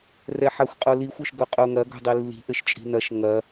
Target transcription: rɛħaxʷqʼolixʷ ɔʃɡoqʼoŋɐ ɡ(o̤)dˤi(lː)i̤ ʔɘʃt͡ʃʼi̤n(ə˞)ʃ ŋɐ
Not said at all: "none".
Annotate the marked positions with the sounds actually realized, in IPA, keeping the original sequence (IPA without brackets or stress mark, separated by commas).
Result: o̤, lː, ɐ